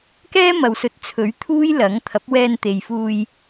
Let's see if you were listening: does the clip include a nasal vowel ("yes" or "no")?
no